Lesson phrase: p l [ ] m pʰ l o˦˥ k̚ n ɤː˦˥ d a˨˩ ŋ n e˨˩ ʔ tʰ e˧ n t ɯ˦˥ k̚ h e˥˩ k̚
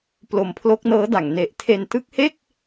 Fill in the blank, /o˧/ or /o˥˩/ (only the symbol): o˧